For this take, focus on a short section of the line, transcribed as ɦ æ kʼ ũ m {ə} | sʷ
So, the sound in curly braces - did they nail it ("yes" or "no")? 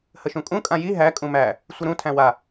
no